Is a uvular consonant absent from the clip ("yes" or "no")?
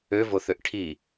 yes